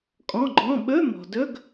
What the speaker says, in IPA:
kʼ ɔ̃˧˥˧ ɡ͡ǃ ɔ̃˧˥˧ ɓ ɵ˧˥˧ m ɔ̤˩ d ɵ˧˥˧ ɡ

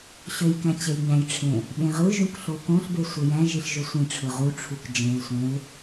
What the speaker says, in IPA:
ɕ ø j k æ̃ t͡ɕ e j ɲ æ̃ j ʈ͡ʂʰ ẽ | ɓ ẽ ʁ ɯ ʒ ũ k ɬ o k õ ɬ b e sʷ e j æ̃ ʒ i ɬ ʒ ø sʷ ĩ ʈ͡ʂʰ ɯ ʁ u ʈ͡ʂʰ u k d͡ʒ ẽ l sʷ ẽ l

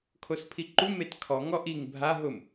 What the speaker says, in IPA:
kʰ o s pʰ i ǃ u m e t kʰ ɔ ŋ ɔ ʔ i ŋ bʱ a ɦ ʊ m

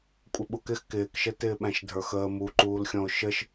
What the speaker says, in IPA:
kʷʼ ɪ ɓ u k ɪ x k ɪː k ʃ ə t ɪː ɓ æ̃ ʃ dʱ ə˞ x əː m u ǃ uː l xʲ ɔ̃ ʊ̯ ʃ ə ʃ

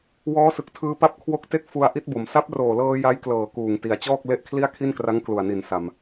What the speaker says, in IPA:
w ɔː˦˥ s ɯ˨˩ k̚ tʰ ɯː˧ p a˥˩ p̚ kʰ w o˦˥ k̚ t e˥˩ k̚ f u˧ a̯ ʔ i˦˥ t̚ b o˩˦ m s a˦˥ p̚ r oː˨˩ l ɤː˧ j a˦˥ j k l ɤː˨˩ k uː˨˩ ŋ t i˩˦ a̯ t͡ɕ ɔː˥˩ k̚ l e˥˩ ʔ kʰ l i˥˩ a̯ kʰ i˥˩ n k r a˦˥ ŋ k l u˨˩ a̯ n i˨˩ n s a˨˩ m

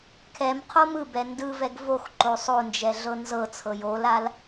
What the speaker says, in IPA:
kʰ ɛ m qʰ o m ɯ b ɛ n d ɯ v ɛ ɡ v o x ǃ o sˤ o n d͡ʒ ɛ ɮ ɤ n z ɤ t͡sʰ ɤ j o l a l

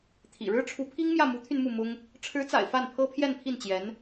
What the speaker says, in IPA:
t̪ʰ ḭ˨˩ ɻ ɻ̩˥ ʈ͡ʂʰ u˧˥ pʰ i˥ ŋ m j ä˥˩ m u˧˥ t̪ʰ y˧ n m u˥˩ m ʊ˥ ŋ | ʈ͡ʂʰ ɻ̩˧˥ t͡s a̰˨˩ ɪ̯ f a˥˩ n pʰ ɤ˥ pʰ j ɛ˥˧ n pʰ i˥˩ n t͡ɕ j ɛ˧˥ n

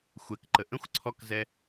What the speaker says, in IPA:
xʷ ɛ k ǃ ə ʔ ə̃ xʷ ǀʰ ɔ k z ɛ

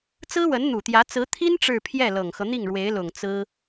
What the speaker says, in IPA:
t͡s ɹ̩˥ w ə˧˥ n n̪ u˨˩ t̪ j ä˧˥ t͡s ɹ̩˧˥ t̪ʰ i˥ n ʈ͡ʂ ɻ̩˥˧ pʰ j ɛ˥˩ l ɤ˨˩ ŋ x ɤ˦ n̪ i˥˩ ŋ ɻ w e˧˥ ɪ̯ l ʊ˨˩ ŋ t͡s ɹ̩˥

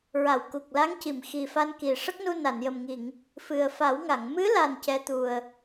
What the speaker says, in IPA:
ɹ a˨˩˨ w k u˨˩ k̚ l a˧˥ ŋ c i˨˩˨ m x i˨˩ f a˧ n k i˨˩ ʂ ə˦˥ k̚ n u˧ n a˨˩˨ n j ə˨˩ m ŋ i˨˩˨ ŋ | f ɨ˨˩ ə̯ f a˨˩˦ w ŋ a˨˩˨ ŋ m ɨ˧˥ l a˨˩ n c ɛ˧˥ t̪ u˨˩ ə̯

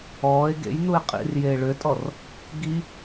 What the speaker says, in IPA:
ɔː e̯ ɡ ḛ j n u e̯ qʼ ḭ r j eː ɭ ø tʼ ɔ r | ɡ i

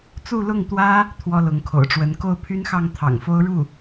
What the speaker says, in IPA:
t͡s u˥˧ l ʊ˥˩ ŋ t̪ w ä˥ | t̪ʰ w ɔ˥ l ʊ˧˥ ŋ kʰ o̰˨˩ ʊ̯ ʈ͡ʂ w ə˧˥ n k o˥˩ ʊ̯ pʰ y˥ n x ɑ˥˩ ŋ t̪ʰ ɑ̰˨˩ ŋ f o˥ ʊ̯ ɻ u˥˩

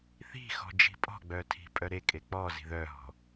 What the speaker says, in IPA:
θ i̤ x ɔ̤ d͡ʒ i̤ pʼ ɔ̤ ɡ͡b œ tʰ i̤ pʼ œ ɾ e kʼ e k͡p ɔ z i̤ ð œ ɦ ɔ̤

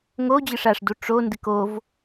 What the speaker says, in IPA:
ŋ o d͡ʑ ɨ ʂ a ʂ d u ʈ͡ʂ o n d ɨ k o v

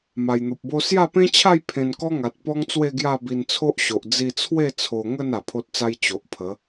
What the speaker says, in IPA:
m a˨˩ j n̪ o˨ p̚ b o˦ s j a˥˧ p ẽ˦ t͡ɕʰ a˥˧ j pʰ ẽ˧ n k ɔ˦ ŋ a˨ t̚ p ɔ˦ ŋ t͡s w e˥˧ ɡ j a˥˧ b i˧ n t͡sʰ o˦ ʔ ɕ o˨ ʔ d͡z i˧ t͡sʰ w e˥˧ t͡sʰ o˧ ŋ ə˥˧ n a˨˩ pʰ o˦ t̚ t͡s a˦ j t͡ɕ o˨ ʔ pʰ ə˨˦

